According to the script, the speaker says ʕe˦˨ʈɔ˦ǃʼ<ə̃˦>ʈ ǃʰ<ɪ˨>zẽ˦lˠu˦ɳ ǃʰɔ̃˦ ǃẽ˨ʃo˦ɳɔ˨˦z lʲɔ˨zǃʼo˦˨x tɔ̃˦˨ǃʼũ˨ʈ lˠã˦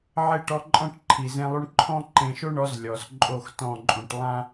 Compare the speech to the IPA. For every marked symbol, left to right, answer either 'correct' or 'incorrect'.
incorrect: ɔ̃˦, incorrect: i˨

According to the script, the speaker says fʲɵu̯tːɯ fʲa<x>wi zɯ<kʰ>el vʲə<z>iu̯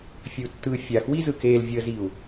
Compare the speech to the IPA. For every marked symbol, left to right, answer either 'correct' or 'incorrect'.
correct, incorrect: k, correct

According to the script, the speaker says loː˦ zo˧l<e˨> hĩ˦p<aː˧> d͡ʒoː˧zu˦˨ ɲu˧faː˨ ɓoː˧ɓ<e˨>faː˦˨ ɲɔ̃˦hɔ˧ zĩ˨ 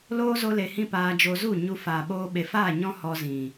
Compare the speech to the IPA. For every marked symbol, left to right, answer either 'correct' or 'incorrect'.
correct, correct, correct

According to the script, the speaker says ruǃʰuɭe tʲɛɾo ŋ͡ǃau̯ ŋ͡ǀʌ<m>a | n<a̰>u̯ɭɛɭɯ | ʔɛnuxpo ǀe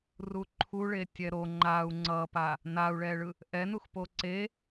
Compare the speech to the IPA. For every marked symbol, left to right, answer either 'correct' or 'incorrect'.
incorrect: p, incorrect: a

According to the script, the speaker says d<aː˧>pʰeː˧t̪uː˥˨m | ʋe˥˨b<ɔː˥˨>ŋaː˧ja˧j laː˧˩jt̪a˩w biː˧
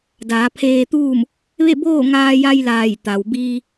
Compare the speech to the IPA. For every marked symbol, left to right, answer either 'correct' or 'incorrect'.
incorrect: aː˩˧, incorrect: oː˥˨

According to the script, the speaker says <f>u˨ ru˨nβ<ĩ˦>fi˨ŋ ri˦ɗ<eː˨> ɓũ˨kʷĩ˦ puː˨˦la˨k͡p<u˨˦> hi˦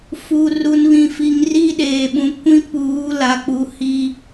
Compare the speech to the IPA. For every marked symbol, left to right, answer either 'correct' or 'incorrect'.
correct, incorrect: ĩ˨, correct, correct

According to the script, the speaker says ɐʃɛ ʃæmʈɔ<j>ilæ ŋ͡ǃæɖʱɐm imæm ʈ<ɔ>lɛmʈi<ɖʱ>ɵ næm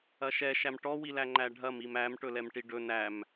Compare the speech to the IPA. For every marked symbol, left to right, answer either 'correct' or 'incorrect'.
incorrect: w, incorrect: ɵ, incorrect: ɖ

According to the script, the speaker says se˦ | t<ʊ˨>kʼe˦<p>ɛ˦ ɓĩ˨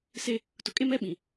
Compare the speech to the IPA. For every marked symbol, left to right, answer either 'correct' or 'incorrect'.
correct, incorrect: m

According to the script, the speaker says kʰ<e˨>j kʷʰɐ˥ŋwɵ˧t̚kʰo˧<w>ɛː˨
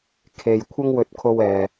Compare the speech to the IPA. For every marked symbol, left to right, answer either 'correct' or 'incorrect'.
correct, correct

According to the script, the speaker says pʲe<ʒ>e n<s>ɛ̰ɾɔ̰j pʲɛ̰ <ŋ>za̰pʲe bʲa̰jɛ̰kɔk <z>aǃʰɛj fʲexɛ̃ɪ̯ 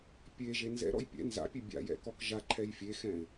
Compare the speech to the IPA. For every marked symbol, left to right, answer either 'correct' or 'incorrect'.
correct, incorrect: z, incorrect: n, incorrect: ʒ

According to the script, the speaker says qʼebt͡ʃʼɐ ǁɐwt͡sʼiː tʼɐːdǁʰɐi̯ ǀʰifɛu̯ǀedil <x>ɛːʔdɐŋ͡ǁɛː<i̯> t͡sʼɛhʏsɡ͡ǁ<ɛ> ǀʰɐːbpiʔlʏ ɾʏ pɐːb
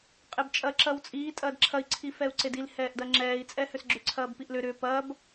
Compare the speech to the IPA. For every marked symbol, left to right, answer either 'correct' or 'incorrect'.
incorrect: h, correct, incorrect: ʏ

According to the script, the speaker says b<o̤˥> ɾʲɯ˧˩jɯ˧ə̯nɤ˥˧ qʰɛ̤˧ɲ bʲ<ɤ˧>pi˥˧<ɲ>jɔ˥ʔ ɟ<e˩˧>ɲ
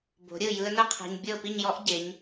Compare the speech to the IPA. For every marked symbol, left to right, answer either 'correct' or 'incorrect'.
incorrect: o̤˩˧, incorrect: ɤ˥˧, correct, correct

